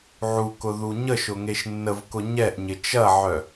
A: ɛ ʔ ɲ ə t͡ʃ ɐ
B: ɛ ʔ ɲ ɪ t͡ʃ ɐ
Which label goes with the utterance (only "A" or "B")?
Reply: B